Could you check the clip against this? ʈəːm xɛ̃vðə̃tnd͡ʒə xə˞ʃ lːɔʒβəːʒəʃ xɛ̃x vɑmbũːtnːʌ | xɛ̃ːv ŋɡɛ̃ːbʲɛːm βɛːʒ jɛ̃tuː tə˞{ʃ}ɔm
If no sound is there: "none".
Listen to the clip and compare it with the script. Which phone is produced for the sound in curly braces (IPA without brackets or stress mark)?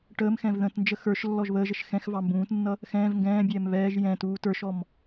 ʃ